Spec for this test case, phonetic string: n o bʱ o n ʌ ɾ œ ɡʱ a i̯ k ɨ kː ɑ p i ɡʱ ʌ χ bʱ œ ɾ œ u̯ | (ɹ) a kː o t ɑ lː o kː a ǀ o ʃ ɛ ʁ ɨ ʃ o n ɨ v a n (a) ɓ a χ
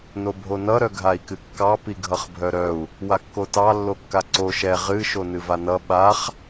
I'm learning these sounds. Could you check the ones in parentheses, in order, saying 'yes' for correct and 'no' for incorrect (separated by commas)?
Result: no, no